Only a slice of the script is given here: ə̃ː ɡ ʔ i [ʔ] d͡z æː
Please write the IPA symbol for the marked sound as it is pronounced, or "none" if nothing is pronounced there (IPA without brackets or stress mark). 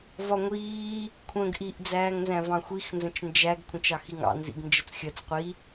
ʔ